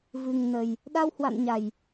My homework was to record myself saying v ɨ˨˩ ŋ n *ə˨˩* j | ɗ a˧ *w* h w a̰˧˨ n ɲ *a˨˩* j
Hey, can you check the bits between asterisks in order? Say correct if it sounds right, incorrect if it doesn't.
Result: correct, correct, correct

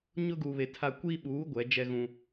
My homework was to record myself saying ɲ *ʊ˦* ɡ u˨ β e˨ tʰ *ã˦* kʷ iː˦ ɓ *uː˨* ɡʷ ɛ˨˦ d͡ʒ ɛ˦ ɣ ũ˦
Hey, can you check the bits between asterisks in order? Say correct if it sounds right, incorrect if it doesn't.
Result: correct, incorrect, incorrect

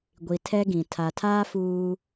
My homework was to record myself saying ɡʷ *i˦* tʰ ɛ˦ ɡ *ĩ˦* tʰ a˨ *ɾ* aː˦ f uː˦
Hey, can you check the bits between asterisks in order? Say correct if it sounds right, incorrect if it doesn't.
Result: incorrect, incorrect, incorrect

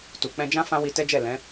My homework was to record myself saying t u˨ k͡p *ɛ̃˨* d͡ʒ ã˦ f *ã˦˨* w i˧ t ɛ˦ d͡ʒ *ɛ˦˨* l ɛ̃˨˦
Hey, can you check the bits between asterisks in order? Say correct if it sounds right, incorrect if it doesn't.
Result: incorrect, incorrect, correct

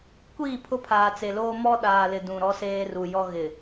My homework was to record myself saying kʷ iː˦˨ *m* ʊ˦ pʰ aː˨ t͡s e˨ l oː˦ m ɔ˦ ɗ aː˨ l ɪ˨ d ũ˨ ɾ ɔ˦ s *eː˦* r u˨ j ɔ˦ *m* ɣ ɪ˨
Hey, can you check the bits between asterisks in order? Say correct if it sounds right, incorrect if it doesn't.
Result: incorrect, correct, incorrect

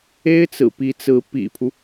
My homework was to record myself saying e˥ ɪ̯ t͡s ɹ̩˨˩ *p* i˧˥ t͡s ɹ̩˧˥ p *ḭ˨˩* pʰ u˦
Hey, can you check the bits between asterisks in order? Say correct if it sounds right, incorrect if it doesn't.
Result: correct, correct

